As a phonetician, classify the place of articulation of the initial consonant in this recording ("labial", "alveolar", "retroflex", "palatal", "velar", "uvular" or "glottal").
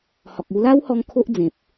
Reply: glottal